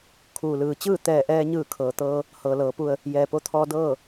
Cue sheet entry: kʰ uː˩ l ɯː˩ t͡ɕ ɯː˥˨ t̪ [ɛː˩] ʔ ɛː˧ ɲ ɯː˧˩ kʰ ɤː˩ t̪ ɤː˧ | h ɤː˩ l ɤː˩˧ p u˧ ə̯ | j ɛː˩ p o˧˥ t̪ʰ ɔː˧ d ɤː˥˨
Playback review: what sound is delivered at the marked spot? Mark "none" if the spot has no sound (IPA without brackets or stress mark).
ɛː˧˩